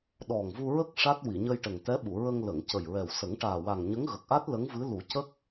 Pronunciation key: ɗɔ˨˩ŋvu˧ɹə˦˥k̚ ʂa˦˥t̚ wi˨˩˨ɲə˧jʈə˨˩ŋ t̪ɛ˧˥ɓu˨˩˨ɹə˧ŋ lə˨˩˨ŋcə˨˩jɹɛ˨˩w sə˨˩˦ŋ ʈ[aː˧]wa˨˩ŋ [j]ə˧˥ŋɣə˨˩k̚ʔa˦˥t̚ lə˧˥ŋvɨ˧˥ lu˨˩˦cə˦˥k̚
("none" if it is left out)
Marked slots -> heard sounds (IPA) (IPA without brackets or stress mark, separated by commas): aː˨˩, ɲ